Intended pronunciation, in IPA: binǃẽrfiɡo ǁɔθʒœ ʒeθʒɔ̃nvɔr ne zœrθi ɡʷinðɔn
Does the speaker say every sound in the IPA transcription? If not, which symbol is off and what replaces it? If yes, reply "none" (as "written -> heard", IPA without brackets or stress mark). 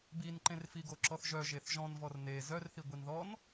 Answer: none